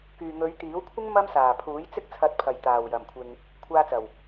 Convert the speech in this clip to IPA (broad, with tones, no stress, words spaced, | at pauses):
kyː˨ŋɵ˨˧ɥt̪iː˨˥wkʷʰɪ˥ŋ mɐ˥msaː˨˩pʰuː˨˥jt͡sɪ˥k̚ t͡sʰɐ˨˥t̚pʰɐ˨˩j t̪aː˨˩wjɐ˨˩mkʷʰɪ˨ŋ | kʷʰaː˧t͡sɐ˨˩w